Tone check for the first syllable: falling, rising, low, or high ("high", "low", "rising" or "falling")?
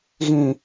low